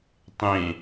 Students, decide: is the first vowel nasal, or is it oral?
nasal